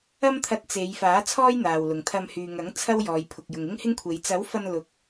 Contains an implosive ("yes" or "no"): no